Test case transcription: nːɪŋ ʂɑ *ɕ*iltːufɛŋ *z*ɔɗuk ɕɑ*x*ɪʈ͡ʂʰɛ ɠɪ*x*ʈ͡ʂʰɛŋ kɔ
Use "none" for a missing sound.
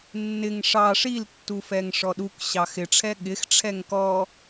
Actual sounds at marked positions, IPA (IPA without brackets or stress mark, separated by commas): ʂ, ʂ, x, x